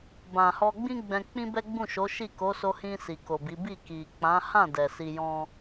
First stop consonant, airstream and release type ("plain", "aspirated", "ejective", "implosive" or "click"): plain